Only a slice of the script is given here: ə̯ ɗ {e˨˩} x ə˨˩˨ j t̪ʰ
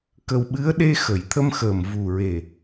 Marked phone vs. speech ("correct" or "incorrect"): incorrect